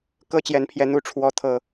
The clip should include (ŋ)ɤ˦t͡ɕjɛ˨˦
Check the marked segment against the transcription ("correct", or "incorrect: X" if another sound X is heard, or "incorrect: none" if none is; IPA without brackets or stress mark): incorrect: k